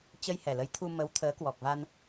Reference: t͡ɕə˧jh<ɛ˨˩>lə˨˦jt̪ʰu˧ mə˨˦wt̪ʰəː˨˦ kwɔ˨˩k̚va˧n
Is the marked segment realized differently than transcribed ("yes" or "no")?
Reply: no